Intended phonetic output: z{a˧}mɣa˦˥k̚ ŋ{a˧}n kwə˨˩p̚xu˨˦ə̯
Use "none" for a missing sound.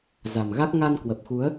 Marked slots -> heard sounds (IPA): a˨˩, a˧

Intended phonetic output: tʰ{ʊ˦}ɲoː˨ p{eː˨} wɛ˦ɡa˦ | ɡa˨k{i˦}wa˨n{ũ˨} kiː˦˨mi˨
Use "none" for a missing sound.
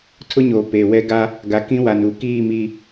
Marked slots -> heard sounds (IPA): ʊ˦, eː˨, ĩ˦, u˨

